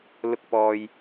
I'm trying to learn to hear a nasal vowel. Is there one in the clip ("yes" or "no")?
no